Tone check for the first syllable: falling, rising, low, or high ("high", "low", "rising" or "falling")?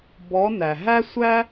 rising